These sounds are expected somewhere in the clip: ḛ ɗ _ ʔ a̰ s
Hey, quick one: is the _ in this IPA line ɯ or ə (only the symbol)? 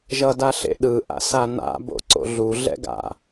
ɯ